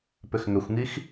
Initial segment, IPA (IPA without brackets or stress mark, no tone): p